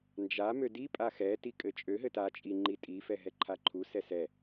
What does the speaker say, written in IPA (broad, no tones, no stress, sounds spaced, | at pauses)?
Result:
n d͡ʒ a m ø d i pʼ a x ɛ t i kʼ ɘ t͡ʃʼ ø ɦ ɘ t a t͡ʃʼ i ŋ͡ǃ i tʼ i f ɛ ɦ ɛ ǃʰ a ǃʰ u s ɛ s ɛ